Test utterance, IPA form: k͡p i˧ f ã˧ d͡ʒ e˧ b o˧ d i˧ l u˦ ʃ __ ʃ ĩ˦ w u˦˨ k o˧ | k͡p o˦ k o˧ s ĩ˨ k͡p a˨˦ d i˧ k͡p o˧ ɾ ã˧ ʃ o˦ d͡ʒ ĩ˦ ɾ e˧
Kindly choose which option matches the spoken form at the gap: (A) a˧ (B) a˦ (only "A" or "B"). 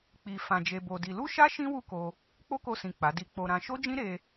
B